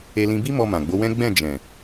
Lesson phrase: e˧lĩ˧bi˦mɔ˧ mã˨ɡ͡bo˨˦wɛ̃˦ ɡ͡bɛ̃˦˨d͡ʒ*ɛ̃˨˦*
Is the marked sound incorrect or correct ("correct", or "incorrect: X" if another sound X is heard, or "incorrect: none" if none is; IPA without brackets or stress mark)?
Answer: incorrect: ɛ̃˨